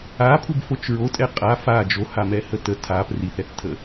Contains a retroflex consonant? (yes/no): no